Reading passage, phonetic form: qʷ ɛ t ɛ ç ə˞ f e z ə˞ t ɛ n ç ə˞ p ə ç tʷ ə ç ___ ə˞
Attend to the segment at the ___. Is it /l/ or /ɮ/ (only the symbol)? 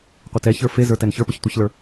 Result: l